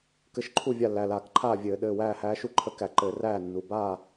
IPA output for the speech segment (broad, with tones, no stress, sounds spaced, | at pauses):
k ɘ˧˥ ʃ ǃʰ u˥˨ vʲ a˥˨ lː æ˩˧˩ l aː˧˩˧ k ǃʰ aː˥˨ vʲ ɘː˧˩˧ ɗ ɘː˩˧˩ w æː˥˨ h æː˧˥ ʃ u˥˨ ǃʰ ə˧˥ k æ˧˩˧ ǃ ɘː˧˩˧ r æː˥˨ nː u˩˧˩ b aː˥˨